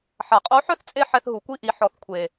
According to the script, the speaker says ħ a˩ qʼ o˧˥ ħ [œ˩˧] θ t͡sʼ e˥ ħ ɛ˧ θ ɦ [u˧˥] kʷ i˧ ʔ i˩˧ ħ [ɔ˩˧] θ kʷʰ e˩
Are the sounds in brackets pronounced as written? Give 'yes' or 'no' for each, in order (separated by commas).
no, no, yes